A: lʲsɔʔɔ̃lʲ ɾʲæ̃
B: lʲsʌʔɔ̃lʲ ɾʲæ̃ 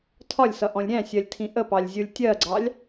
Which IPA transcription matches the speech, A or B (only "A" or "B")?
B